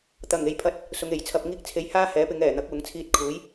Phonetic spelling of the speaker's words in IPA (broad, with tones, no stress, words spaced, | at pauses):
t̪ɐ˨˩ŋe˨jpʰɐ˨˥t̚ | sʊ˨˧ŋe˨˩jt͡sʰɐ˧p̚ ŋiː˧k̚t͡sʰe˨˧j haː˥hɛː˨˥pɪ˨˧ŋ ɛː˨˩n̪ɐ˨˥k̚ wʊ˨˥ŋt͡sʰiː˧t̚kʰuː˨˥j